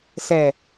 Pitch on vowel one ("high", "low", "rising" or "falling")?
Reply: low